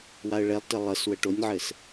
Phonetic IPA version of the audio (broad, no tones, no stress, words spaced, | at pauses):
waə̯ɭɛlˠtə lˠəs wəʈonʲʕɘs